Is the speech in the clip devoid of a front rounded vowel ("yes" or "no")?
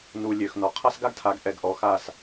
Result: no